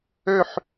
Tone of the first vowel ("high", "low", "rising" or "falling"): falling